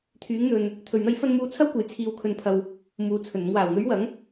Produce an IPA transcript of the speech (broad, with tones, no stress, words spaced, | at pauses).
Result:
t̪ʰyː˨˥ŋn̪ɵ˧n | t̪ʰɵ˨˩ɥn̪ɐ˧jfɐ˧nmuː˨˥ t͡sʰɐ˥wkʷɐ˨˧j t͡sʰiː˧wkʰɵ˧npʰɐ˧w | muː˨t͡sʰɵ˨˩nʊ˧ŋ waː˨˩wn̪ɵ˨˥ɥwɐ˨˥ŋ